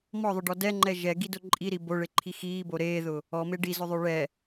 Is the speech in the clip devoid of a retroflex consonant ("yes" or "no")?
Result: no